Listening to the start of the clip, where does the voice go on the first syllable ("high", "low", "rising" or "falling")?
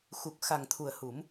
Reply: low